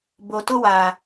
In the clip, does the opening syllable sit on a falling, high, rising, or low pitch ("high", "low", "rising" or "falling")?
low